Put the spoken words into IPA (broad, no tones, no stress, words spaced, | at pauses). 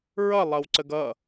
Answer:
ɹʌlˠʌwǀəɡ ʌ